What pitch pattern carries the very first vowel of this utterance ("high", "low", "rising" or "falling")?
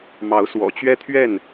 rising